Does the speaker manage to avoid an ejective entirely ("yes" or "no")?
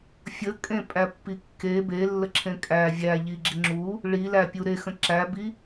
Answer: no